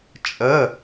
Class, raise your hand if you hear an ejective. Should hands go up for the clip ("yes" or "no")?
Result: yes